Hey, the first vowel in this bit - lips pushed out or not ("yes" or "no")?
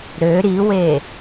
yes